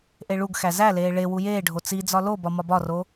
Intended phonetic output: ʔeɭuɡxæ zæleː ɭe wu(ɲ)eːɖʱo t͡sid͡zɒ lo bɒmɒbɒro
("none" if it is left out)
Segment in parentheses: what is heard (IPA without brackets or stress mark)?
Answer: j